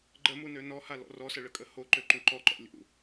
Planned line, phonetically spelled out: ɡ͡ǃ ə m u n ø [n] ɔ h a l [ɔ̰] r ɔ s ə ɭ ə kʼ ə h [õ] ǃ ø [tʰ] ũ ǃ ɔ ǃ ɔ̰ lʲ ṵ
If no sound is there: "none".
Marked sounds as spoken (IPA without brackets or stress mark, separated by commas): n, ɔ̰, o, ǃ